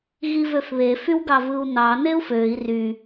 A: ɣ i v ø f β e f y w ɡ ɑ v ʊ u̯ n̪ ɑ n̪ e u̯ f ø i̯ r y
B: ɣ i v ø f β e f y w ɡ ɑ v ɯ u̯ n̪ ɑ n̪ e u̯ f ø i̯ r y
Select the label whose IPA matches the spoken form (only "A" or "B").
B